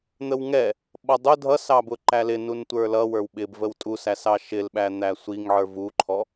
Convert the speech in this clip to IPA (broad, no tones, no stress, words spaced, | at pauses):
n̪əwŋɛ | ɓʌdˤʊ dʱʌsɑbʊ ǃælɪ nuntʷə˞lʌ wə˞wɓɪbvəw tʼusæs ɑʃɪlɓæn̪æ sʷiŋʕə˞ vuǃʰɔ